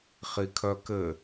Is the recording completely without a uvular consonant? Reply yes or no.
no